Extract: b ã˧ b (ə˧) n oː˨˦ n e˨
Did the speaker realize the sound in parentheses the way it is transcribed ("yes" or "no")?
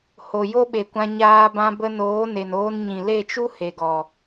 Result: yes